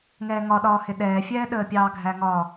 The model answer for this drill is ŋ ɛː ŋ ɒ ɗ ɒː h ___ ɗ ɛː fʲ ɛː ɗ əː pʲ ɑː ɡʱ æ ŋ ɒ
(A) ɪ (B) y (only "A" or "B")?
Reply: A